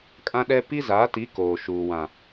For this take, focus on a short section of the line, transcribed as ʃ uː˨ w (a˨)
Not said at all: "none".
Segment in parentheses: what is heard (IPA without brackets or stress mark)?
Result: ã˨